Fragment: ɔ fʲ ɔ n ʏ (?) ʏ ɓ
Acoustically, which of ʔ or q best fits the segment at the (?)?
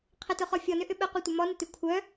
ʔ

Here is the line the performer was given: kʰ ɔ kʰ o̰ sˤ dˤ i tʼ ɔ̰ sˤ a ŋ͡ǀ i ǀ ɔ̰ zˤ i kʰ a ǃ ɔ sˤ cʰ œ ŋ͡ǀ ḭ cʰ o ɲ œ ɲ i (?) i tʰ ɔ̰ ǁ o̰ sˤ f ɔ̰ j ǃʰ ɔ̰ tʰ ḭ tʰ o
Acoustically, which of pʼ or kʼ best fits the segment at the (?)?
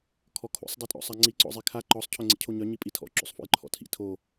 pʼ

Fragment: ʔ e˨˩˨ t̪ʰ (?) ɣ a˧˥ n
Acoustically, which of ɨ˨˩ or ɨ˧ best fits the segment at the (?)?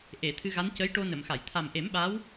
ɨ˧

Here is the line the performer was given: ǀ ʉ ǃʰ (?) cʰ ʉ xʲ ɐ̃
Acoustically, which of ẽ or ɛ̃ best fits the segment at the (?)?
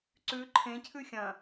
ẽ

